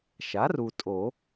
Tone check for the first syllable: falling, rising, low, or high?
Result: rising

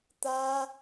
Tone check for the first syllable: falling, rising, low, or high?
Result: high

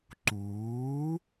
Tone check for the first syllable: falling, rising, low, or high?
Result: rising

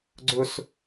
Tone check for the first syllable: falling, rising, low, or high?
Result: high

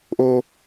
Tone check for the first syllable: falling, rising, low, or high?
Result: high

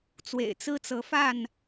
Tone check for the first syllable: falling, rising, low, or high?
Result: low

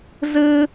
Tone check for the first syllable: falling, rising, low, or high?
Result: high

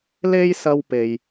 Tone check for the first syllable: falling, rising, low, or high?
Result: high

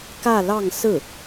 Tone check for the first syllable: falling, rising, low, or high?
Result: falling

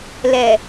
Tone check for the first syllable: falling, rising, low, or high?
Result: low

